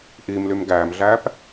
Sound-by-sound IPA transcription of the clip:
ʔimlym ɡæːmɮæːp

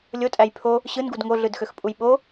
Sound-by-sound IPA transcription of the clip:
lʲotʼæj pʰo | ɕɯnɡud ŋoɮɯdxøxpʼuj ɓo

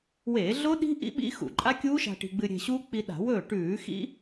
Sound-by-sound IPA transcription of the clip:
weː˧˩˧ɮo˦˥ɗi̤˦˥ ʔḭ˦˥ɓḭ˦˥ xṵ˧˩˧ǃʼa˦˥kʲuː˦˥ʃa̤˧ ʈi̤˧ɡ͡bɨ˧ɾʲe̤˧ ɕu˦˥k͡pi˧ɗa̤˧˩˧wɵː˥˩ ʈʉː˧˩˧xḭ˦˥

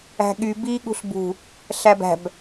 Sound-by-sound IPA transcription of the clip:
æ̤ɠy bi ɠṳɬbṳ | ɬæbæ̤b

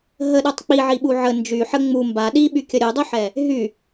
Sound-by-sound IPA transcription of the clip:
ɦəɗutˤ k͡piʕiɓu ʕə nd͡ʒy ħə ŋ͡mu mba ɗiɓykʲə ɾʲudˤuħɛ | ɦy

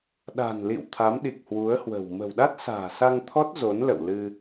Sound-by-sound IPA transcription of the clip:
ɗa̤˨˩nlḭ˧˨w t̪ʰa˨˦mɗi˨˩k̚hwu˨˦ə̯hwə̤˨˩w mə̤˨˩wɗa˦˥t̚sa̤ː˨˩ sa˧ŋt̪ʰɔ˦˥t̚ zo˨˦nlə̰˧˨w lɨ˧

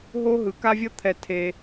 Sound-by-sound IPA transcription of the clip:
ɦo˦ɦɯ˨˦ka˦vʲʌ˦ t̪ʰɛ˦˨tʰe˦

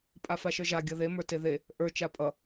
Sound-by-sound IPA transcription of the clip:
pʼafaʃə˞ʒa ɡʲʌðe mə˞teðe | ʔə˞ t͡ʃapʼʌ

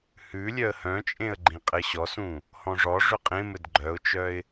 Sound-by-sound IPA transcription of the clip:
hʉ lʲœə̯hœ̃t͡ʃʼẽə̯ ɡ͡ǃĩqʼɘɕɔsũ | hɔ̃ʐɔʐʏ qʼẽmɘd ɡ͡ǃœʊ̯t͡ʃœɪ̯

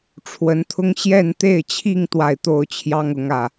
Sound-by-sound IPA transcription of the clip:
ʈ͡ʂʰwə˧˥nt̪ʰʊ˥ŋ ɕjɛ˥˧nt̪e˥˧ɪ̯t͡ɕʰi˥˧ŋ t̪wa˥˩ɪ̯t̪o˥ʊ̯t͡ɕʰjɑ˥ŋ ʊ˧˥ŋä˥˩

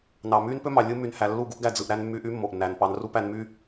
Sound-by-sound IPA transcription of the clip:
nɑ˨myː˦npø˦mɑ˨ lʲɯ˦my˨nhæ˨ lːu˦˨ ɡu˧ʔɡæ˨ d͡zɯ˨ʔ ɾæ˧n mːyː˧ʔy˦ mːo˨ʔnːæː˨npɑ˧nru˦ pæ˧nmyː˦

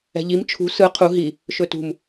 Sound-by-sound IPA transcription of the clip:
ɛ̤ʎim t͡ʃʰṳ sɯ qʰu ɦi | ʃɵtṳm

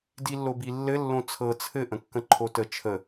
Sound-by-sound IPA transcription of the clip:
dilːobilːɘ lːõt͡sʰɤ t͡sʰɘ ʔə̃kːə̃ǃʰotə t͡ʃʰə

